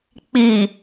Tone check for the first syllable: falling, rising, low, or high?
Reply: low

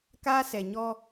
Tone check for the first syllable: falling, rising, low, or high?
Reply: high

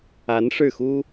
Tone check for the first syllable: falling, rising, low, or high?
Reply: rising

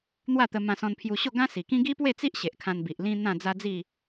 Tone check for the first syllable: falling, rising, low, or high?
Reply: falling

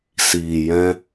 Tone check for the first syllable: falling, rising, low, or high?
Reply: low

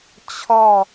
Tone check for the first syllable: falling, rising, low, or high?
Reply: falling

